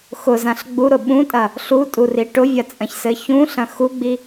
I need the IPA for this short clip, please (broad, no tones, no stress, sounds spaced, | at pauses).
x ʊ z ã ɬ ɡ͡b u ɾ ʊ ɓ ũ tʼ ɐ | ɬ u tʼ u r i ʈ ʊ vʲ ɐ t͡sʼ ɐ̃ ç s ɘ ç ũ ɬ ɐ̃ x u ɡ͡b i